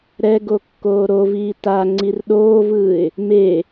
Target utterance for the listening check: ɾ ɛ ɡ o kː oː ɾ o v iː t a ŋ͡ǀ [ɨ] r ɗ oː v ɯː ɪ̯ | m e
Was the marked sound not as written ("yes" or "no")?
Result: yes